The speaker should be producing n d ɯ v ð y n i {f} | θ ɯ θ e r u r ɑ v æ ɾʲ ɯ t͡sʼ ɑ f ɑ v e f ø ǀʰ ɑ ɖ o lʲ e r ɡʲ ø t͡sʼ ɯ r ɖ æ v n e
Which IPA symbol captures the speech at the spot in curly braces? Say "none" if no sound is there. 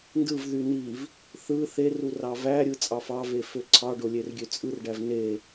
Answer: v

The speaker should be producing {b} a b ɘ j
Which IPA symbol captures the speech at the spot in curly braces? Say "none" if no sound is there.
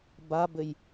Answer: b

